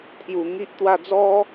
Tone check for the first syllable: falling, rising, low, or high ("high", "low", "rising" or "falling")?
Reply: low